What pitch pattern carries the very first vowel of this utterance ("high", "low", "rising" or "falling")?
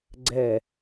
low